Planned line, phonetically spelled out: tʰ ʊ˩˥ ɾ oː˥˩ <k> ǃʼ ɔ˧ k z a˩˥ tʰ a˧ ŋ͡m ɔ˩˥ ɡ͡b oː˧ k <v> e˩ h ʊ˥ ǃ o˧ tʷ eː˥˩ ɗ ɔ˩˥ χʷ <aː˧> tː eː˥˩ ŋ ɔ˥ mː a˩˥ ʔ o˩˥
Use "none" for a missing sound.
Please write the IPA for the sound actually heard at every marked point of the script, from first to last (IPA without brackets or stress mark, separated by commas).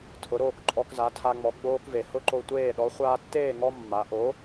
k, v, aː˧